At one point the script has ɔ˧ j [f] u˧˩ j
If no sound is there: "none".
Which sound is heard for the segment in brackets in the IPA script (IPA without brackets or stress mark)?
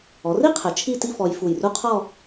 f